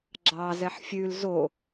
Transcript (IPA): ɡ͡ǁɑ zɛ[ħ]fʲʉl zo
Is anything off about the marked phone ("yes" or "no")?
no